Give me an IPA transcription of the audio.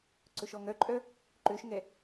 ǀɵʃɔŋœǃʼœ | ǃøʃŋɛ

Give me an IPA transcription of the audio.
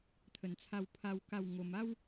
t̪ʰə˨˩nt͡sʰa˧wpʰa˧w ka˥˧wŋo˧m a˦w

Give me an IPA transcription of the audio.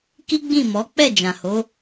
ki˦ɡ͡bĩ˦˨mɔ˨˦ k͡pɛ˦˨d͡ʒã˨ho˨˦

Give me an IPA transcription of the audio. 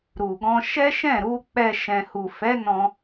ɾu˨ɡɔ̃˧ʃɛ˦ ʃɛ̃˦˨ɾu˨˦k͡pɛ˧ ʃɛ̃˨hu˨fɛ˨˦nɔ̃˧

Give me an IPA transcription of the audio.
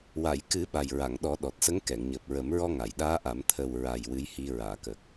wa˨˩˨jkɨ˨˩˦ ɓa˨˩jɹa˨˩˨ŋɗɔ˨˩˦ ɗɔ˨˩t̚sə˧˥ŋ kɛ˨˩˨ŋɲəː˨˩p̚ɹə˨˩˦mɹɔ˧ ŋa˨˩˨jɗaː˧˥ʔa˨˩˦m t̪ʰə˨˩wɹa˨˩j wɨ˧˥jhi˧ ɹaː˨˩˨kəː˨˩k̚

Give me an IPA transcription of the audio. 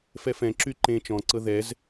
fɛfɛ̃ǁy ǃẽ t͡ʃɔ̃ǀɤ ðɛz

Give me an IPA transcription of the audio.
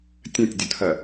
tʲɐ̃tʲdʲʊtʰɜ

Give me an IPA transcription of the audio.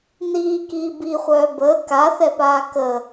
niːkiː biχʷœː bəː kaθɛpaː kə

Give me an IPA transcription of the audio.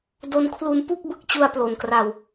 do˧nkʰlu˧n pu˥˩k̚ bɯ˥˩k̚t͡ɕu˧a̯plo˨˩n kra˧w

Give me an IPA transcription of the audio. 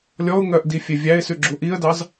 lʲɔʊ̯ŋœʔdifʲe vʲæɪ̯sʉɡ͡ǁu ʔiə̯dɑz

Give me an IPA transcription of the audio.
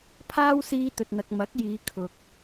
pʰaː˥wsiː˧t̪ɵ˨t̚n̪ɐ˨k̚ mɐ˨˥k̚jiː˨˧ kʰʊ˨k̚

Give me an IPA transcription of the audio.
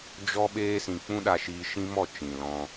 d͡ʒɔ˦ ɓeː˦sĩ˧ k͡pũ˦ɗa˧ʃiː˧ ʃĩ˦mɔ˦˨ t͡ʃĩ˨lɔ̃˧

